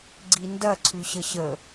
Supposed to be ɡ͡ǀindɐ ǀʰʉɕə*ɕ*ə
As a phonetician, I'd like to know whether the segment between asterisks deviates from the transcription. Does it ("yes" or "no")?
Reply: no